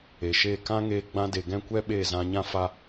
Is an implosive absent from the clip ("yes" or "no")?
no